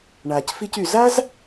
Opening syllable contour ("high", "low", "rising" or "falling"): low